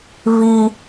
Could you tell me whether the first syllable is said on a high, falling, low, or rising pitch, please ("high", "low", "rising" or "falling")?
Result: high